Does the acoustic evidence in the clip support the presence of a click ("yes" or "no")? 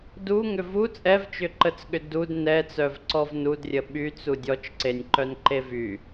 yes